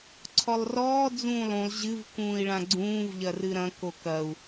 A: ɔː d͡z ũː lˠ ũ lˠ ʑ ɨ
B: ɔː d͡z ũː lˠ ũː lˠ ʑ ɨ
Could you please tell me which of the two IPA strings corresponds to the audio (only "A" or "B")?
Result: A